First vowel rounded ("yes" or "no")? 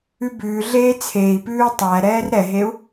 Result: yes